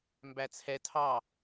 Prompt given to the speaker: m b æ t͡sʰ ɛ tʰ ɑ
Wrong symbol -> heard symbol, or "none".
none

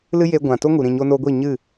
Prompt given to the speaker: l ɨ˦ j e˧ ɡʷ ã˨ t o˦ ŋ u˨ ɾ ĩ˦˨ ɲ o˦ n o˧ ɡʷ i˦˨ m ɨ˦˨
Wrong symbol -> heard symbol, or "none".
m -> ɲ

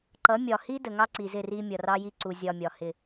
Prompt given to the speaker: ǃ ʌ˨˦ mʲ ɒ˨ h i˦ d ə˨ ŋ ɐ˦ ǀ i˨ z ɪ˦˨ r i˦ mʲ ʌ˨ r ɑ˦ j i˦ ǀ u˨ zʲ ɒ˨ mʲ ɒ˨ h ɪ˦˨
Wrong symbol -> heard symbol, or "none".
ɐ˦ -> ɑ˦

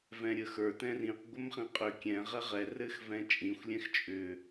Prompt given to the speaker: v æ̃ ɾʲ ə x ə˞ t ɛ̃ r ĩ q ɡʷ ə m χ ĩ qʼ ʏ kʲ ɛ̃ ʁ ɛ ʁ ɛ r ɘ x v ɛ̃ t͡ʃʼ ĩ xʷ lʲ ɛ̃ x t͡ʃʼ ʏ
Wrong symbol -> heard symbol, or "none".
æ̃ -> ɛ̃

